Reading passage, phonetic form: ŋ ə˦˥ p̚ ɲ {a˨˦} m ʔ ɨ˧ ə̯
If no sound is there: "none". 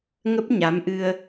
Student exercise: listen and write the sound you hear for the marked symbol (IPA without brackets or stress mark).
a˨˦